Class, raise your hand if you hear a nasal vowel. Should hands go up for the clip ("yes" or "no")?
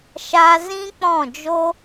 yes